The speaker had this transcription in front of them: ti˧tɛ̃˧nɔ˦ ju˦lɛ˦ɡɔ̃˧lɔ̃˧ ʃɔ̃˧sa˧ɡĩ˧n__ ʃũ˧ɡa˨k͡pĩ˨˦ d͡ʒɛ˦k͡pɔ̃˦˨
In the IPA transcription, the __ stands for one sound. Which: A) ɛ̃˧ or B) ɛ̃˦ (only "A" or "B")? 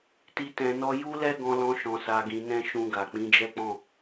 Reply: B